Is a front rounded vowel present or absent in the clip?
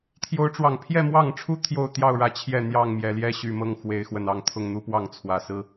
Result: present